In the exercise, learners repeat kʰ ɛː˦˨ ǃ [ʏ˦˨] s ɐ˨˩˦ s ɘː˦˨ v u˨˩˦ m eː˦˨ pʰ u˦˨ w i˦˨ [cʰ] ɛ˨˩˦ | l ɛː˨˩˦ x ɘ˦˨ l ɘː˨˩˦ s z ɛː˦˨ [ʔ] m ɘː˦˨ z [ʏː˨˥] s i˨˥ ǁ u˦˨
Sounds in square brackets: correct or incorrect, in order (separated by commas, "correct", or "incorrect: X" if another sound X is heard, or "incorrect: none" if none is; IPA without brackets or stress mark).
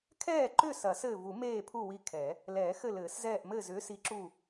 correct, incorrect: kʰ, correct, correct